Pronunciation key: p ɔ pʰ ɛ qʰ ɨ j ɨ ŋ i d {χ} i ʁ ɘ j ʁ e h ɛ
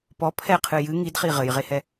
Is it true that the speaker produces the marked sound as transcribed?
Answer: yes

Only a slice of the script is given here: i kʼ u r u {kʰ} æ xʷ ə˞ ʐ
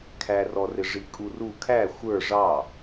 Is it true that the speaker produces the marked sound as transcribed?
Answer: yes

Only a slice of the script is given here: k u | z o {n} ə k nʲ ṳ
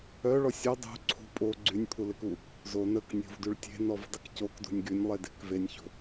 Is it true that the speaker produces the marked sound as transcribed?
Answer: yes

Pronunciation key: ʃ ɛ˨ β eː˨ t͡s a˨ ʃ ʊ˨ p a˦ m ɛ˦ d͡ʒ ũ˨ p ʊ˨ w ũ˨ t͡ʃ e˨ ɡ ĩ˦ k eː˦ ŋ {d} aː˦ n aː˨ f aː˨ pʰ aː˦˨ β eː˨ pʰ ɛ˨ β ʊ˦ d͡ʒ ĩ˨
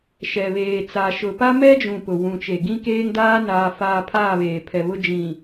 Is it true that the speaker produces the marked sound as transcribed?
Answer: yes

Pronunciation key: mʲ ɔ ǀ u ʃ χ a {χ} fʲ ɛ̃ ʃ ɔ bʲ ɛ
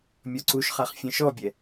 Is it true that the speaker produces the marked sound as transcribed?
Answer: yes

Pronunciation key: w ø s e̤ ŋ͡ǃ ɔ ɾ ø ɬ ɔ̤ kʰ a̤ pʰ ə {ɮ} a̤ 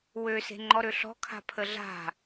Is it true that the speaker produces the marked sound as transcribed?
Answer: yes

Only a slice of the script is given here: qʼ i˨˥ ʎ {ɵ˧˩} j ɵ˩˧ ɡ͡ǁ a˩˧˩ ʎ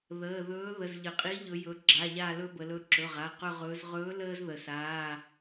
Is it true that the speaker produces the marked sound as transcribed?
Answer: no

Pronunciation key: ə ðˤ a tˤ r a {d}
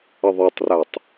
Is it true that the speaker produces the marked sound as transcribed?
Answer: no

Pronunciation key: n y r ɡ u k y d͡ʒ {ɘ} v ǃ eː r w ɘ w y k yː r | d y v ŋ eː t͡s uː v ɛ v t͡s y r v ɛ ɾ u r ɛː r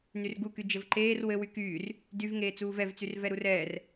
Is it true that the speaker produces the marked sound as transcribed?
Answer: yes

